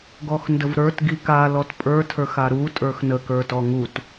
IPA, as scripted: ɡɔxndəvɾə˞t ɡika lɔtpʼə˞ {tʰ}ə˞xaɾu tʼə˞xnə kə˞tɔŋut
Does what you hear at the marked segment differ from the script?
no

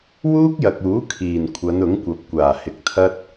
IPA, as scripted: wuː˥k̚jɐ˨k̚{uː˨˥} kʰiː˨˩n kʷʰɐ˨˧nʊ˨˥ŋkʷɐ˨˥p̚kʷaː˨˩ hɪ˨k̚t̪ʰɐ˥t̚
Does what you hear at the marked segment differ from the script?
no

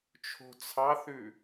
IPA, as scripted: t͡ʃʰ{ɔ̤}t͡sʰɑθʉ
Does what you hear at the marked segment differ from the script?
yes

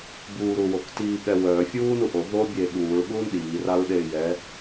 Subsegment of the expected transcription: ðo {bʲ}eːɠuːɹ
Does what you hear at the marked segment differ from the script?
no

